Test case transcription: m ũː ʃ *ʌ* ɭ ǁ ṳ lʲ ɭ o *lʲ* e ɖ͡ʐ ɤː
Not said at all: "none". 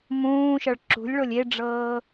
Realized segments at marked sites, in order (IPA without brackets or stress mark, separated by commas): ʌ, lʲ